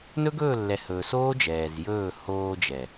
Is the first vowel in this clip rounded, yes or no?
yes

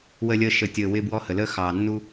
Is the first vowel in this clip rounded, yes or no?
no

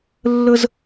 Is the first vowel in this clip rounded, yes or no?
no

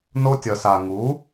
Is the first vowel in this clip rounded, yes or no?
yes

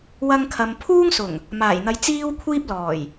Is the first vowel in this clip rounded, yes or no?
no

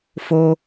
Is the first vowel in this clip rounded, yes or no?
yes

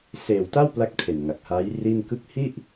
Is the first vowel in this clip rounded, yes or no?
no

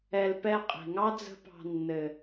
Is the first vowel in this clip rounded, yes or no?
no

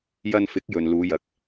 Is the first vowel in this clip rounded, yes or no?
no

